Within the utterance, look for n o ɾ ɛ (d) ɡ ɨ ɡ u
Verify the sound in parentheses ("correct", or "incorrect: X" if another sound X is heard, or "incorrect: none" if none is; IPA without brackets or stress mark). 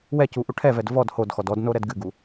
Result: correct